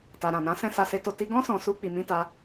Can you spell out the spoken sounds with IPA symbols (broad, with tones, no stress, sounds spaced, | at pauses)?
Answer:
t a˨ ɾ ã˨ n ã˨˦ s ɛ̃˦˨ s a˧ s e˧ t o˧ t i˧ ɡ ɔ̃˦ s ɔ̃˧ s u˦ k͡p i˧ m ĩ˦ t a˦